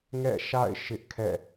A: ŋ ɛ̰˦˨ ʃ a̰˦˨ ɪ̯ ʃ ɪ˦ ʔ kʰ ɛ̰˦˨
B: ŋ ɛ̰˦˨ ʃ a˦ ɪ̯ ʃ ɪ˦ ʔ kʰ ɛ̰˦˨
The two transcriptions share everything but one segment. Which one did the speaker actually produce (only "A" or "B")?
A